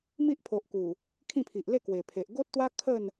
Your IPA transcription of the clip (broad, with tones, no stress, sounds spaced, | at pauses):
m i˦ ʔ pʰ o˨ ʔ k u˨˩ | kʰ ĩ˥˧ pʰ i˨ ʔ l e˥˧ k w e˨˩ pʰ e˨ ʔ ɡ o˦ t̚ t̪ w a˦ kʰ ə˥˧ n